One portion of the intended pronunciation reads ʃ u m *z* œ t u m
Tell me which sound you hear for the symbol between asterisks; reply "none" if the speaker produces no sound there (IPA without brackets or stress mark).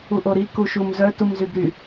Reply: z